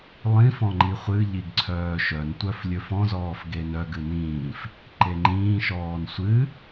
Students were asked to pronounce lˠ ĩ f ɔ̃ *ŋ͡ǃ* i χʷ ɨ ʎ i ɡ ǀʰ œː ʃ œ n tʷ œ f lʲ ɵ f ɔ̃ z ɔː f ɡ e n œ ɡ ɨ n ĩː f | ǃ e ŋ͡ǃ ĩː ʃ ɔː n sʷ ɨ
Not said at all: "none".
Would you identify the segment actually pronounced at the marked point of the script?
ŋ͡ǃ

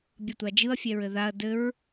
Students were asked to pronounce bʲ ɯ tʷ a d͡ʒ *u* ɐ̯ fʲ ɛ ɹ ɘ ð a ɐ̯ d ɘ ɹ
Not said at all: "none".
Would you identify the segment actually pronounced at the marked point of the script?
ɯ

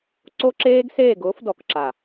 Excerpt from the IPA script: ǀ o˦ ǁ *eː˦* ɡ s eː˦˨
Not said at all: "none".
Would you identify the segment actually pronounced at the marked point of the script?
eː˦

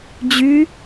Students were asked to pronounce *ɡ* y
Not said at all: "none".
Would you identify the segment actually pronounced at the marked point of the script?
d͡ʑ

